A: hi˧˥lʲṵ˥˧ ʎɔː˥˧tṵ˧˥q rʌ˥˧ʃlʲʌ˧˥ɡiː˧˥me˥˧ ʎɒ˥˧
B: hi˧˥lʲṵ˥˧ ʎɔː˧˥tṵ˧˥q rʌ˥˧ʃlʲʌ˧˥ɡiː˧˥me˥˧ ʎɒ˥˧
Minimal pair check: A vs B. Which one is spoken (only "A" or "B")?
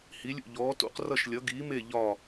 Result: B